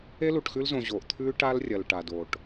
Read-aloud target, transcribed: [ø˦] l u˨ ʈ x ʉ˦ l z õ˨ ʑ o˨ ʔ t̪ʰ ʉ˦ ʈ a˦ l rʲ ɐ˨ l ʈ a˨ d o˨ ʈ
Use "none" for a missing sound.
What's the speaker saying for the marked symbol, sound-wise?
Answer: e˦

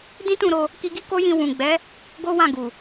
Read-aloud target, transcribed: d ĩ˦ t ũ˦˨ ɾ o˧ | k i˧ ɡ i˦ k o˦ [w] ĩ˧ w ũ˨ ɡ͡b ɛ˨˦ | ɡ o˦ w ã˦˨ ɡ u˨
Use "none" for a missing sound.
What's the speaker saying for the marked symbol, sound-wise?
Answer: j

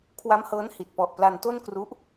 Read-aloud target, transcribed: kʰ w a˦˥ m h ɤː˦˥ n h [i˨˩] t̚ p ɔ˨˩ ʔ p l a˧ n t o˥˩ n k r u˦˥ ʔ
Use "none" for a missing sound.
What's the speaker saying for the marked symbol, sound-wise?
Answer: i˨˩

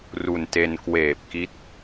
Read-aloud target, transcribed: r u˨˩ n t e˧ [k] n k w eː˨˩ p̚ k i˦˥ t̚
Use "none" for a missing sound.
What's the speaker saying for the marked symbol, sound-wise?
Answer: none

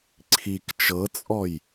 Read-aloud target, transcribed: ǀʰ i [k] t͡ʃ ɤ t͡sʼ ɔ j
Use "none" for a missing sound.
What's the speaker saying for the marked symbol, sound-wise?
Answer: k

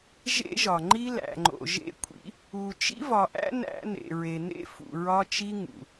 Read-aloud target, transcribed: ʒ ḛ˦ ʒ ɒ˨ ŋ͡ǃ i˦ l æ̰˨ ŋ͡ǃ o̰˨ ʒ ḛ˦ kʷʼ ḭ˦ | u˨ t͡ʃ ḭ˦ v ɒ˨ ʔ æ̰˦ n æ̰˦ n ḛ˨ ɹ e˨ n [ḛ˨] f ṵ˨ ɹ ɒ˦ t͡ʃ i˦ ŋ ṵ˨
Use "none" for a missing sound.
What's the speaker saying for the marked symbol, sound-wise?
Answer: ḛ˦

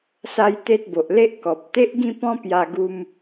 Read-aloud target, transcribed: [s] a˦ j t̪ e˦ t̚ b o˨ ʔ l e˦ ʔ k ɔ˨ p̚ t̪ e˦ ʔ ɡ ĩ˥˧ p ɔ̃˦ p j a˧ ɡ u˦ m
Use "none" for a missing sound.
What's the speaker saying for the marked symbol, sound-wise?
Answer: s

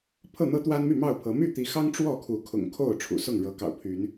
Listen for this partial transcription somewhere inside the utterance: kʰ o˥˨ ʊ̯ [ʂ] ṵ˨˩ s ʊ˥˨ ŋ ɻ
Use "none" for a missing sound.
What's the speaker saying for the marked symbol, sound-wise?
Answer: ʈ͡ʂʰ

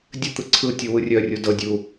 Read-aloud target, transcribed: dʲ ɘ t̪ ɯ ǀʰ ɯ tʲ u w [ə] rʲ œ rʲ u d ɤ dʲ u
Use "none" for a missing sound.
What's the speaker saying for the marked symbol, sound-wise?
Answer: ɯ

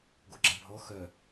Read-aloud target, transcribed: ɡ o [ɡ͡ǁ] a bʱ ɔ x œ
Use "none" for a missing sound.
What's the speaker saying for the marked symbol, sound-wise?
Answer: ɡ͡ǁ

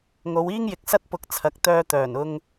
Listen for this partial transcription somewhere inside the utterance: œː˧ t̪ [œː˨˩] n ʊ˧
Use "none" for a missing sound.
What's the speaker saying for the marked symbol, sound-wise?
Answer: œː˨˩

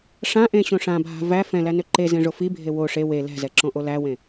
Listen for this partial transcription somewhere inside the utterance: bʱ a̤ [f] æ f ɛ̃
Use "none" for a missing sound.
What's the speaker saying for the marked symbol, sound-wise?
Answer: v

